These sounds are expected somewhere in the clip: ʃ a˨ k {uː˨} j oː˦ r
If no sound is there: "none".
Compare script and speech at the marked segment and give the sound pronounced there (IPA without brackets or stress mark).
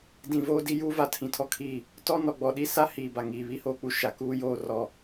uː˦